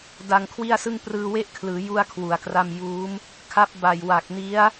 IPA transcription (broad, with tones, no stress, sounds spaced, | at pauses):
d a˧ ŋ kʰ w i˥˩ a̯ s ɯ˥˩ ŋ p r ɯː˧ w e˦˥ ʔ kʰ l ɯː˩˦ j u˥˩ a̯ kʰ w u˩˦ a̯ k r a˥˩ m j uː˦˥ m | kʰ a˦˥ p̚ b a˨˩ j w a˨˩ k̚ n i˦˥ a̯